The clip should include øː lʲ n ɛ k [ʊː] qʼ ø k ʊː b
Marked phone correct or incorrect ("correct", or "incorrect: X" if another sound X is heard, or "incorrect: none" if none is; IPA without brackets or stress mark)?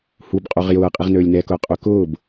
correct